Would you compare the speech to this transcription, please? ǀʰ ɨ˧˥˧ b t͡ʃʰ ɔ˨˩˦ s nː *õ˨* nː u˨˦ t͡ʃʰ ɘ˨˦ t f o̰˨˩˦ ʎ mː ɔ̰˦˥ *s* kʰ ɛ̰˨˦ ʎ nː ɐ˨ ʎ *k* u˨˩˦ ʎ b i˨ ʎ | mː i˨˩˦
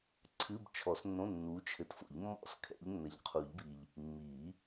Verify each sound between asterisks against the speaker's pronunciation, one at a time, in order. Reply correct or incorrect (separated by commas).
incorrect, correct, incorrect